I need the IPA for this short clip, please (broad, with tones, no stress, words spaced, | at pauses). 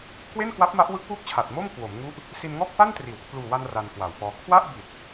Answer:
kwe˥˩nkwa˦˥p̚ma˦˥ʔwɯ˦˥k̚ wuː˥˩k̚t͡ɕʰa˨˩t̚moː˥˩m kwo˩˦m ŋu˦˥ʔ | si˧nŋɔː˥˩k̚fa˥˩ntriː˩˦w kʰluː˨˩wa˧n ra˧nkwa˨˩wfɔː˧ kʰwa˥˩ʔbi˨˩t̚